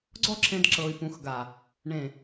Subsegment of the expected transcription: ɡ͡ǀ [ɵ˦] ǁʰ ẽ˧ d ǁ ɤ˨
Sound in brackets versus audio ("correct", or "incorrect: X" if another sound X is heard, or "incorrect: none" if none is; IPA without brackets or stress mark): incorrect: ɔ˦